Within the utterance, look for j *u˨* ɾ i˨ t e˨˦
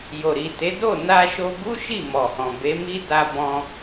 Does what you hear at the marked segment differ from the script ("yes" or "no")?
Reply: yes